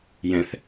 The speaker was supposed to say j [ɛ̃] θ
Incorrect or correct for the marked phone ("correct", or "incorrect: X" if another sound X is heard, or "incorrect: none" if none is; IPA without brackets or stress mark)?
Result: correct